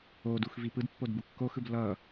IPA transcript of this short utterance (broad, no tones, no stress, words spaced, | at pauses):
odux vipɯdpːod bukːoxɯb lʌ